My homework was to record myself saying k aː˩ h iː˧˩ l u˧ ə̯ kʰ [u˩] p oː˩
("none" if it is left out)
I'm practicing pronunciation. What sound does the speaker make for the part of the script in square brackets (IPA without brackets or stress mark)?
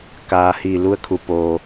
u˩